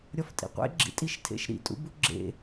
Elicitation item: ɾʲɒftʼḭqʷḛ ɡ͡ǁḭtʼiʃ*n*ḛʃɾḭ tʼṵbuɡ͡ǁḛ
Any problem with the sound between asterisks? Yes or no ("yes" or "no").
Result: yes